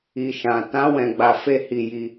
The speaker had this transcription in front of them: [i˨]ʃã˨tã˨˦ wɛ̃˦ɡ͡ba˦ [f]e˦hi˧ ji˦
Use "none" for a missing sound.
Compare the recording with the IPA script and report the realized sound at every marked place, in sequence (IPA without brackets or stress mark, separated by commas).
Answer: i˨, f